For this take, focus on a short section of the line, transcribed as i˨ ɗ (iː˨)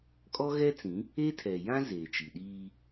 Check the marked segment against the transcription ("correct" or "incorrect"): incorrect